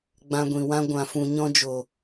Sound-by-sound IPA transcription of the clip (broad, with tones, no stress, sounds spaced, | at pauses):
ɡ͡b ã˧ ɡʷ ĩ˨ w ã˦ ɡʷ ã˨ f ũ˨ ɲ ɔ̃˧ d͡ʒ o˨